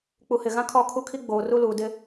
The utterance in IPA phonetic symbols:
k͡pu˨hɪ˨ɣã˦ kʰɔ˦˨kʰu˦kʰi˦ ɡ͡boː˨ru˦luː˨ dɪ˦

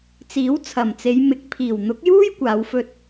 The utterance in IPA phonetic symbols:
t͡siː˨˥wt͡sʰɐ˨˩mt͡se˨˧jmɪ˨˥k̚ pʰiː˨˩w n̪ʊ˨˥k̚juː˥j kʷaː˨˧wfɵ˧t̚

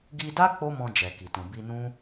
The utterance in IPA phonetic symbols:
ɡi˧da˦ k͡po˦mɔ̃˧ d͡ʒɛ˨ki˨tũ˨ bi˧nũ˦

